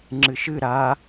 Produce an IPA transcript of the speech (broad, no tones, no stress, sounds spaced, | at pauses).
ŋ͡ǁ ɨ ʃ ɨ ɾ a